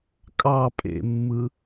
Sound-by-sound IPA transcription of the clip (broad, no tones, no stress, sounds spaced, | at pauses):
kʼ ɑ pʼ ḛ mː ɯ